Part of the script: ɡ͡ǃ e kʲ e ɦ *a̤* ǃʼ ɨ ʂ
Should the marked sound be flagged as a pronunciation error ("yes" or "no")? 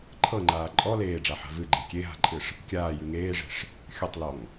no